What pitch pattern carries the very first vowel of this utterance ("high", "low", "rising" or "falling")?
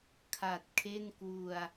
low